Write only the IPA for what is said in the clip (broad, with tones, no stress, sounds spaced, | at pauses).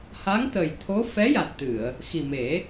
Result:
h a˧˥ ŋ t̪ ə˨˩ j t̪ʰ o˧˥ f ɛ˧˥ j a˨˩ t̚ t̪ ɨ˨˩˨ ə̯ | x i˨˩ m e˨˩˦